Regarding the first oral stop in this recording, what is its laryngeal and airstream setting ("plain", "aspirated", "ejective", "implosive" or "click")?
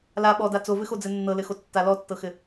implosive